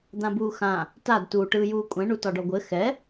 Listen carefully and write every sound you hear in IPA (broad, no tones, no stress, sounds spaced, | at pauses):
d̪ ã b uː x ã | t a d t uː ʈ ɯː j uː kʷʼ ɛ̃ ɳ u t ɒ ɖ ɔ ɡʷ ɘ x ɛ